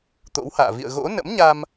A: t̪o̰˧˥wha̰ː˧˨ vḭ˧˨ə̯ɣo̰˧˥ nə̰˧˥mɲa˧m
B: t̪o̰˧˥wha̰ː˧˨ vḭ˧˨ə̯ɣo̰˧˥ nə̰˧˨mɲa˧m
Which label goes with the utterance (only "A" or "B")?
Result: A